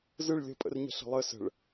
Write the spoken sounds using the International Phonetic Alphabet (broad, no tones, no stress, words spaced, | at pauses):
zɯɭ lʲə̤pʼə̰rɲə̤ ɬə̤lˠə sə̤ɭ